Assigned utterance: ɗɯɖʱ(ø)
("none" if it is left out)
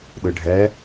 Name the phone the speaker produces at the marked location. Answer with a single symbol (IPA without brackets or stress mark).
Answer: ɛ